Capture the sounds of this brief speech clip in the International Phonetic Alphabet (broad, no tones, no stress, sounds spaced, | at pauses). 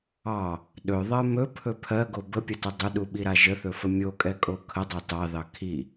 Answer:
ɑ | ɗ ɵ ðˤ ɜ m ɵ pʰ ɵ pʰ ɜ ɡ o b ə pʲ ə t ɵ dˤ ʏ ɗ u ɓ i ɾ a ʒ ə θ ɵ f ə mʲ o kʼ ɛ kʼ o kʰ ə dˤ ɑ t ɑ ð ɑ kʰ i